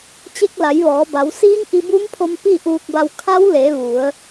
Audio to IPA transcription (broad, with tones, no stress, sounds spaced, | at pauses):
t͡ɕ e˧ k̚ l a˩˧ j ʋ ɔː˩˧ b a˩˧ w s iː˧˥ ŋ ʔ i˧ b u˧˥ m pʰ o˧ m p i˥˨ ʔ uː˧ k̚ b a˧ w kʰ a˧˥ w l e˩˧ ʋ u˩˧ ə̯